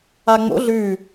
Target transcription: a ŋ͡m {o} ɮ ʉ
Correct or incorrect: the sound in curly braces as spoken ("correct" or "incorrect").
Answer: incorrect